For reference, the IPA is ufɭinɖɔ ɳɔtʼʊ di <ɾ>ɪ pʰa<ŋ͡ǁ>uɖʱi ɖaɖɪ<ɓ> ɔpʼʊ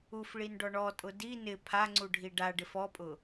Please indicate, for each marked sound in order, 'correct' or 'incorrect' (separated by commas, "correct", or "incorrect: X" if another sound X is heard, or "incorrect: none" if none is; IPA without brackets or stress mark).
incorrect: n, incorrect: ŋ͡ǀ, incorrect: f